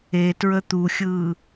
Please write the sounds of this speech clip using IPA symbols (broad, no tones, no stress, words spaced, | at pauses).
etɹə t̪uxʲɯː